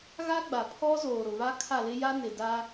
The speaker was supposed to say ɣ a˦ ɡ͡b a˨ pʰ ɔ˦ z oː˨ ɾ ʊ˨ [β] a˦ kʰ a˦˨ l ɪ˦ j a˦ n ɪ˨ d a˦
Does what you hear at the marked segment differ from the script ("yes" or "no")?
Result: no